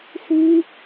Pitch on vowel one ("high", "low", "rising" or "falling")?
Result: high